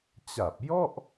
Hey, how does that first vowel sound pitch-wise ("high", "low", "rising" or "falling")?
low